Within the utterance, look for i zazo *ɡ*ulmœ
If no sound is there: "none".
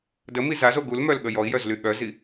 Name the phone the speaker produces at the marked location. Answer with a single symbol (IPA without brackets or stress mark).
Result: ɡ